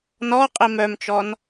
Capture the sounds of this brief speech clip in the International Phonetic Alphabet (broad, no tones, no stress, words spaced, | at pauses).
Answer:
nɔ qʼimœmt͡ʃɔn